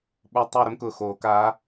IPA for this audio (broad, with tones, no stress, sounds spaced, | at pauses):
ɓ o˧˥ tˤ ɛ˥˧ ɾ ʊ˥ m k ʊː˨ x oː˨˩˦ k aː˧˥